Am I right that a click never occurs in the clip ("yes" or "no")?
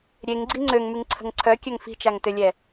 no